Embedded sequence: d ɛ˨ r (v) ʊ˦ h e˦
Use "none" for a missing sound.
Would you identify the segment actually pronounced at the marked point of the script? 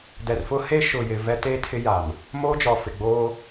f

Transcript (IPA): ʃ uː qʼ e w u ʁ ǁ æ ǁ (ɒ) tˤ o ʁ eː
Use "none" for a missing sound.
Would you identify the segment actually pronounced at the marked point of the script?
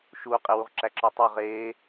ɒ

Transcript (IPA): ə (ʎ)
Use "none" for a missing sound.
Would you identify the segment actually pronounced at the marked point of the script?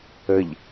ʎ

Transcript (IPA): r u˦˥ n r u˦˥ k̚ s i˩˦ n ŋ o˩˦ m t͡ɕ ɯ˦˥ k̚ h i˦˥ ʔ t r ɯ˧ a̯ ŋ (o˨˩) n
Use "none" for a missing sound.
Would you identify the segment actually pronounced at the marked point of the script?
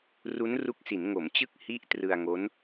o˦˥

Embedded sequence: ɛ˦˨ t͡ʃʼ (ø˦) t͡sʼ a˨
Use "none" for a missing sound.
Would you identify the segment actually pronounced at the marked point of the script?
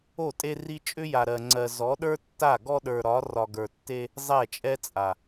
ɛ˦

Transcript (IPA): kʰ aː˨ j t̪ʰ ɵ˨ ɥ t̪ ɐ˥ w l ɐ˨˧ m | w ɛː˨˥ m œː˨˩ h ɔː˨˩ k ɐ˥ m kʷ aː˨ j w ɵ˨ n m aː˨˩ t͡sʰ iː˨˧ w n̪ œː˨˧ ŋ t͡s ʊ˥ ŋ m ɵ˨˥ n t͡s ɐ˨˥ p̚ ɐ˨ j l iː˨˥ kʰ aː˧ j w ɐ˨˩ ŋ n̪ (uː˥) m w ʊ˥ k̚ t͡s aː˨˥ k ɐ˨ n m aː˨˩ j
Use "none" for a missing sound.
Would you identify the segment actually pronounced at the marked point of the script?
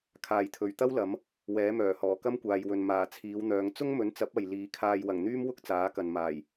yː˥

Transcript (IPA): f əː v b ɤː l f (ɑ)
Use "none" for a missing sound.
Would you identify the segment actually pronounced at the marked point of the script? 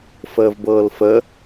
ə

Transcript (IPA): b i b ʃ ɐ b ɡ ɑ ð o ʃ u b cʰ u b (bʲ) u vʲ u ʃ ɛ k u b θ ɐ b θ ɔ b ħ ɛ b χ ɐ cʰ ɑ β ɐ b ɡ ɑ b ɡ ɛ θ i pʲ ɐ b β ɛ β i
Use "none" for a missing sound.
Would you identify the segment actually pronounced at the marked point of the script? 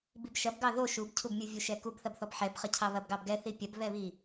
mʲ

